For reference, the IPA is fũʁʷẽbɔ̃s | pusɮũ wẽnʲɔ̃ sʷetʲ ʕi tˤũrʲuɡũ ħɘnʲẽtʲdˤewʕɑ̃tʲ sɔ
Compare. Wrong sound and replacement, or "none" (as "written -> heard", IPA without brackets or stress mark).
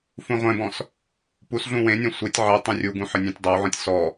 ɑ̃ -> ɔ̃